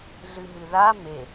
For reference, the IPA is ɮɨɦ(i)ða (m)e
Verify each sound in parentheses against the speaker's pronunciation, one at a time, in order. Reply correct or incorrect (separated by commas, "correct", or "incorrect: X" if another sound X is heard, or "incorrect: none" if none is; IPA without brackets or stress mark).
incorrect: ɨ, correct